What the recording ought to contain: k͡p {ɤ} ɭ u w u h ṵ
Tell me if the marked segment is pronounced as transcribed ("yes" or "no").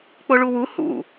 no